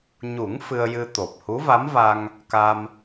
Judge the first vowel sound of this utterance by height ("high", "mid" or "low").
high